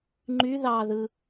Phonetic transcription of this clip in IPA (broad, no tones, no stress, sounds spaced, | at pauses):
ŋ͡ǃ y ð ɑ ð ɯ